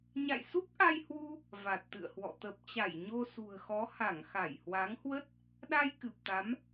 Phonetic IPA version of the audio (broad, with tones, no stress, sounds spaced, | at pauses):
ɲ a̰˧˨ j s u˦˥ k̚ ʔ a˧ j h w u˧ | v a˨˩ t̚ t̪ ɨ̰˧˨ ə̯ h w ɔ̰˧˨ t̪ ə˨˩ p̚ t͡ɕ a˧˩ j ɲ o˧ s ṳ˨˩ ə̯ x ɔ˨˦ h a˧˩ ŋ x a˧˩ j h w a˨˦ ŋ h w ə˦˥ t̚ | ɗ a˧ j k ɨ˨˩ p̚ t̪ a˨˦ m